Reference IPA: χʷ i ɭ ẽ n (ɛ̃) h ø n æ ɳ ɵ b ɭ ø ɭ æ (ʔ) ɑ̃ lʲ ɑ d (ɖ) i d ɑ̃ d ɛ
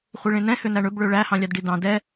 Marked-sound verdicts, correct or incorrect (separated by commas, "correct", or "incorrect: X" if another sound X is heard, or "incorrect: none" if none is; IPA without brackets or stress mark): correct, incorrect: h, correct